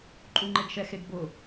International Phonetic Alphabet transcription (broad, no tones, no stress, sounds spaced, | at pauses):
ǃʼ u ŋ͡ǃ e ɡ ʃ ɛ x e ɡ b ʊ